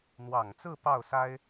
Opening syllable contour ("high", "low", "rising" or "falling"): low